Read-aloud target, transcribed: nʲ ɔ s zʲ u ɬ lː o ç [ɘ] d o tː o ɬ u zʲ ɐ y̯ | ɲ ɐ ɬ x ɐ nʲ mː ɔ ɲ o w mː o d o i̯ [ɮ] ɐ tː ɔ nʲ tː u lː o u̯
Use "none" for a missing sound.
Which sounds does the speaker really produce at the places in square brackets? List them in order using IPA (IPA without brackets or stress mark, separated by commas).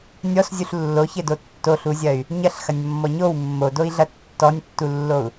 ɘ, ɮ